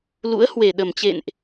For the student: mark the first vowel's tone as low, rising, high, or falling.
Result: rising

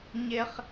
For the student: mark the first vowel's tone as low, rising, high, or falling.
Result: high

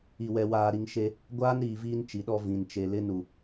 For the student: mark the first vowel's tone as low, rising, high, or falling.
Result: low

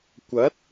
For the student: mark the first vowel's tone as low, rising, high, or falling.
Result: rising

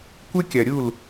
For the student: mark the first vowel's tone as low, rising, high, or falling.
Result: high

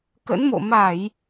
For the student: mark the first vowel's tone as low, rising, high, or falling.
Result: rising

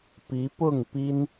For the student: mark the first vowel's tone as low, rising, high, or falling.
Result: rising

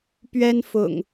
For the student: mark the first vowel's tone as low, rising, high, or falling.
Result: high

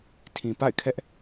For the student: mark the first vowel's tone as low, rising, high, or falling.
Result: low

